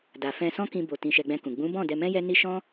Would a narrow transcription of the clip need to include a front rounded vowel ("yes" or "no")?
no